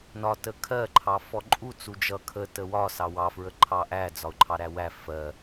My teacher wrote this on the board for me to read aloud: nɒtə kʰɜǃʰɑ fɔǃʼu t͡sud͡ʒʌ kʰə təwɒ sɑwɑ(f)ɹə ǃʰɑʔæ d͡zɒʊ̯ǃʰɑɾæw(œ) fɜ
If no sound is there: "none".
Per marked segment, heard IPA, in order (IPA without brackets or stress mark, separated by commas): f, æ